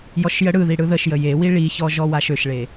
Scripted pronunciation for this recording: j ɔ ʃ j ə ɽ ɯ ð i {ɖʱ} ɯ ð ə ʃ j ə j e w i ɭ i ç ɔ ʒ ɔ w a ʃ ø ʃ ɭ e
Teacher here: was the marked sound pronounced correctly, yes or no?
no